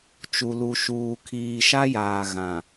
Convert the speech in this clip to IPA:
t͡ʃu˨lu˨ ʃuː˨kʰiː˨ʃa˦jaː˨ ɣã˨

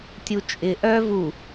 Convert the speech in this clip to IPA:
tʲut͡ʃʼɪ ʔœ vu

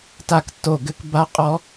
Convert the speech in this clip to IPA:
ta˥˨ktːo˥˨ɡɘ˦˥k ba˦˥qʼɔ˦˥

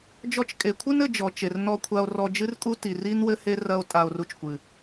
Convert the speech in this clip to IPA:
d͡ʒɔ˧t͡ʃkʼe˨kʷʰɨ˦n ɘ˧d͡ʒɔ˨t͡ʃe˨r nɔ˧kʷʰa˧o̯ rɔ˧d͡ʒɨ˦rkʼu˦ ti˨ri˦n wɘ˦he˦ rɐ˧o̯ tʼa˧o̯ru˧t͡ʃkʷɨ˨

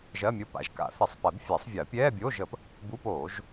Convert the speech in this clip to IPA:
ʒɜ˧˥˧mʲo˧˥˧pa̰˨˩˦ʒ ka̰˨˩˦θɪ˨˩˦sˤpɛ˨˩˦bfʲɛ˨˩˦sˤ vʲɜ˨˩˦pʲɛː˧˥˧ bʲoː˧˥˧ʒə˨˩˦p | buː˧˥˧poː˨˩˦ʒ

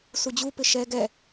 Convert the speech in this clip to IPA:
sud͡ʑupɪ ʃɛ ɡɛ

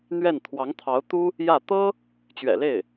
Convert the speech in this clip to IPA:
n̪ɥɛ˥˩n t̪ʰwɑ˧˥ŋt̪ʰɑ˧˥ʊ̯ t̪u˥ | jä˥˩ t̪ɤ˥ | t͡ɕɥɛ̰˨˩le˥˩ɪ̯

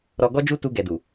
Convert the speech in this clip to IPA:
ɾɔ˧ɡɔ˦d͡ʒu˦ tu˧ɡɛ˨du˨

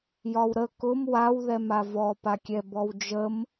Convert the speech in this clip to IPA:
jɒwɾə kʊm wawðɛma vɔpakʲɛ bɔwd͡ʒəm

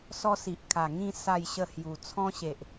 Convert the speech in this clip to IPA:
sɔ˦si˨ʔkʰa˨˩ ŋĩ˥˧ sa˥˧jɕə˥˧hju˨˩ t͡sʰɔ̃˦ɕe˨ʔ

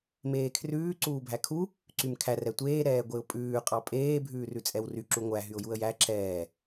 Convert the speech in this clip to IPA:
meːkʰrʉː ǀuːbʱækʰu | ǀymkʰær ɛtʷeː ɾɛːɡʷeʊ̯pʼʉː qʼɑpʼeː bʱʉːrʉt͡sʼɛwry ǁuŋʷæ ɦyʊ̯juə̯jæ ǁɛː

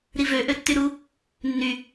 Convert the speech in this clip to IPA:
ɾivø ʔøtːyɾu | nːy

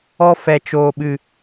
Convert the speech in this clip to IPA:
ɔ˧ fɛ˨t͡ʃoː˨ɓɨ˨

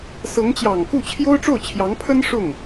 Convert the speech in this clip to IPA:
sɤ˧˥ŋt͡ɕjɑ˨˩ŋku˥˩ t͡ɕʰjo˥ʊ̯ʈ͡ʂo˥˩ʊ̯t͡ɕʰjɑ˧˥ŋpʰə˥n ʂʊ˥˩ŋ

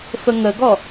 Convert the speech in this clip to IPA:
fəŋəɡɔ

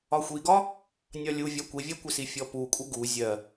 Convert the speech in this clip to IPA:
ɒxʷiɡɒ | nʲɒlʲuvʲɒ kʷivʲɜkʷɪsi fʲɔpukʷʼɪ ɡu zʲɜ

